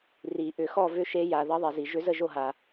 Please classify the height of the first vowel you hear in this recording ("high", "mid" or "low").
high